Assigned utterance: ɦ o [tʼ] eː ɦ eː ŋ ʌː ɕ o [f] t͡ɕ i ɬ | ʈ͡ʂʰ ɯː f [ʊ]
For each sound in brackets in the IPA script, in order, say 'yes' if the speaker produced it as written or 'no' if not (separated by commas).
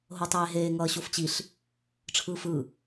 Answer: no, yes, no